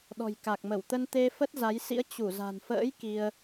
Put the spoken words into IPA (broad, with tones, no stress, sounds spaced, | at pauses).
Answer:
ɗ ɔ̤˨˩ j k a˨˩ k̚ m ə˧˩ w t̪ ə˧ n t̪ e˧ f ə˦˥ t̚ z a˨˦ j s ḭ˧˥ ə̯ t͡ɕ u˧˩ z a̤˨˩ n f ə̰ː˧˥ j k i˧ ə̯